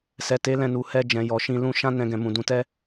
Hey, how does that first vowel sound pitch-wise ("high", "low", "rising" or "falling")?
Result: low